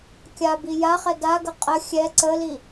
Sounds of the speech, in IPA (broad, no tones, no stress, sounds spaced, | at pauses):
kʲ a b i j a χ ɛ d a ɡ ə qʼ ə xʲ ɛ ǀ ə l i